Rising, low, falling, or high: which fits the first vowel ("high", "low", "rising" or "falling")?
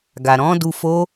low